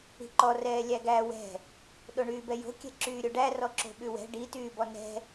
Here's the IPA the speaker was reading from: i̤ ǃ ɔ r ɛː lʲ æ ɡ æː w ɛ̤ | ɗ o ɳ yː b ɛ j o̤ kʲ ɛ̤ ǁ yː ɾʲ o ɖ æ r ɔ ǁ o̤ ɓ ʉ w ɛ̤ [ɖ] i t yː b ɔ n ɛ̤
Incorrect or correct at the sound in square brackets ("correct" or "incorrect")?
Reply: correct